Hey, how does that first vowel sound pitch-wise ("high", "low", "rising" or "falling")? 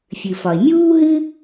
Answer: low